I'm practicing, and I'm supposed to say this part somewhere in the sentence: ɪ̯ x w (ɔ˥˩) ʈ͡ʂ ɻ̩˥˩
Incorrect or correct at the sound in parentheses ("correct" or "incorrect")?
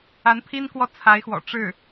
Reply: incorrect